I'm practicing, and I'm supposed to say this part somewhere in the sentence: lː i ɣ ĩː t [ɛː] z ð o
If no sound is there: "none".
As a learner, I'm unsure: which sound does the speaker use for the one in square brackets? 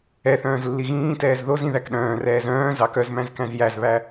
ɛː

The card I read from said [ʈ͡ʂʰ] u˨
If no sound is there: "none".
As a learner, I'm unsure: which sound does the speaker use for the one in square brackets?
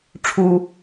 ʈ͡ʂʰ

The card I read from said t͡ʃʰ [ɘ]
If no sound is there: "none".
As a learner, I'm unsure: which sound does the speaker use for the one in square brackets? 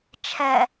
ɛ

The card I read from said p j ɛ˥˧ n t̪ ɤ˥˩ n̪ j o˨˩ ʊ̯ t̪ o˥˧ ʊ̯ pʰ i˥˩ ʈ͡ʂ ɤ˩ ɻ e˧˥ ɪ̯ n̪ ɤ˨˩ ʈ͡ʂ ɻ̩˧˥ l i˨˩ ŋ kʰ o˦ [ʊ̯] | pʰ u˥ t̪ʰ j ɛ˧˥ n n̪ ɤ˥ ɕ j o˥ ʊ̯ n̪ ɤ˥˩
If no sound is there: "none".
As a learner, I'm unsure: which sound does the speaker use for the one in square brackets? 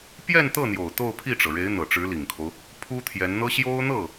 ʊ̯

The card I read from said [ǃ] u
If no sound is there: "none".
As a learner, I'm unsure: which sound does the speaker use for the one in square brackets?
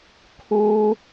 kʰ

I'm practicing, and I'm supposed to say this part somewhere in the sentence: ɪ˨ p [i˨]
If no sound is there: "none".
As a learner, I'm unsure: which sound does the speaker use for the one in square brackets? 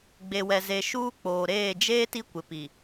i˨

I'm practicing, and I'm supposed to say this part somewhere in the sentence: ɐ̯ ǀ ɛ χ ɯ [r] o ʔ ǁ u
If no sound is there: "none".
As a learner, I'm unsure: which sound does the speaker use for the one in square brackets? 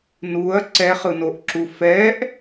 n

